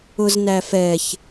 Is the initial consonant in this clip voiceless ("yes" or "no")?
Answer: no